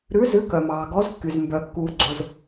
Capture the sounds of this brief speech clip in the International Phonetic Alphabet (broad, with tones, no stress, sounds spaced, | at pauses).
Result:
ɾ ʉ˨˦ z ʉ˨˦ k œ˩ m ɑː˩ ɡ ɔ˨˦ z kː y˩ z m b œ˩ kː uː˩ ɡ͡ǀ o˩ z